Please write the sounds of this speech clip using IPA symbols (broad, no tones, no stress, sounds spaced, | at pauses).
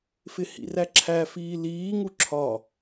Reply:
f ɪ h ḭ r æ ǁʰ æ f iː l iː ŋ u ǁʰ ɒ